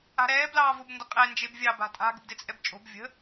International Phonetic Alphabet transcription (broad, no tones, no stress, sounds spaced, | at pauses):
a̤ ɾ ɛː b l ɑː v ʊ b n d ə qʼ ɛ n d͡ʒ e b vʲ ɑ b a̤ tʼ a̤ ɡ ə̤ b d e t͡sʼ ɛ b t͡ʃʼ o̤ b vʲ ə̤